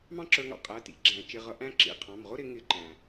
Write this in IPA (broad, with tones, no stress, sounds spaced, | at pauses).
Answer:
m ɑ̃˥ ǁ ə˞˧ ŋ ɑ̰˧ qʼ æ˩˧˩ t ḭ˨˩˦ ɡ͡ǁ æ̃˨˩˦ t͡ʃ ɪ˩˧˩ ʁ ʌ˧ ʔ æ̃˥ ǁ ḭ˩˧˩ qʰ ɑ̃˩˧˩ m ʁ ʊ˥ ɾ ɪ˨˩˦ ŋ ɪ˨˩˦ ǃ æ̃˩